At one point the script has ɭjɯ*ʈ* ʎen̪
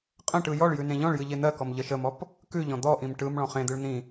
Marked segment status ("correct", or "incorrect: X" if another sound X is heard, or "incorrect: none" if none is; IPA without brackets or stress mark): incorrect: none